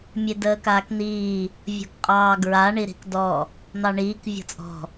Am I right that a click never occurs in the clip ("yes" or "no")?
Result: yes